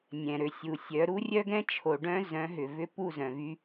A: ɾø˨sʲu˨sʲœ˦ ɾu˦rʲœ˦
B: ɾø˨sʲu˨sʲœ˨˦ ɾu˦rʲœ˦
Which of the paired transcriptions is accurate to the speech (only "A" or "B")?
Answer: B